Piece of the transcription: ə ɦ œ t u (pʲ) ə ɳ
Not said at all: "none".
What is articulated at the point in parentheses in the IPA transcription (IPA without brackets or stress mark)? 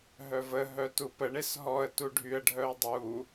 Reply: p